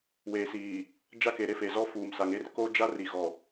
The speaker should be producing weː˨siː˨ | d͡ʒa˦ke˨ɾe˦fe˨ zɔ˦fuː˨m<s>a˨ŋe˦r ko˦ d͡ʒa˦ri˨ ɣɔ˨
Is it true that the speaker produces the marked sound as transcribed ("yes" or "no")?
yes